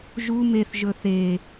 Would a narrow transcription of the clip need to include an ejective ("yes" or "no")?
no